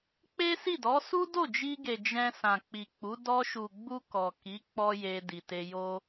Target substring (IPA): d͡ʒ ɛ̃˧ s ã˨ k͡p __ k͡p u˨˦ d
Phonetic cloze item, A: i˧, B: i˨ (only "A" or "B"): B